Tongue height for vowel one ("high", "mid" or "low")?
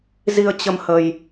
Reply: high